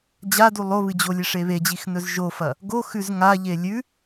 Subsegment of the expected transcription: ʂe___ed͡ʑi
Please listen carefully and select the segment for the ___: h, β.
β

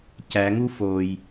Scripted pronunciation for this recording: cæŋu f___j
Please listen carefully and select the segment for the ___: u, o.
o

